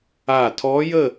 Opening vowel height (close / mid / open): open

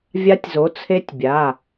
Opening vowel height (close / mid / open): open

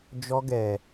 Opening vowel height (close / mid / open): mid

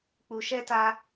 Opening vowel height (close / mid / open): close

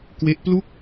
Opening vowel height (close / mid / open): mid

